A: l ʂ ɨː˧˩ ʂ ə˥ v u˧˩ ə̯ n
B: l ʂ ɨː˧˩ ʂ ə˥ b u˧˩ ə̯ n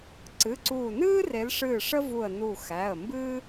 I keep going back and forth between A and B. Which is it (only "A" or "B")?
A